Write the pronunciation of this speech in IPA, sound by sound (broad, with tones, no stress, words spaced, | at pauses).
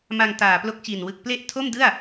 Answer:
ma˧ŋtaː˨˩ plo˦˥k̚t͡ɕi˨˩nwɯ˨˩k̚ ple˥˩ʔ tʰo˥˩mdɯ˥˩a̯